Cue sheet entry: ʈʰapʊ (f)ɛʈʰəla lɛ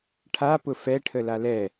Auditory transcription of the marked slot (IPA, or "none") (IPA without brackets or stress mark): f